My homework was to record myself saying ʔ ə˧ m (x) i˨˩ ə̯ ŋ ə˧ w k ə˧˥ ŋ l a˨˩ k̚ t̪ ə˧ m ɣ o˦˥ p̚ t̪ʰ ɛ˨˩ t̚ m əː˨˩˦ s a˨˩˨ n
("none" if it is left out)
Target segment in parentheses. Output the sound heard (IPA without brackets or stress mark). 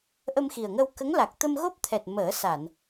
x